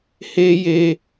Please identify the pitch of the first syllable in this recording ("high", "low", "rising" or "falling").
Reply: high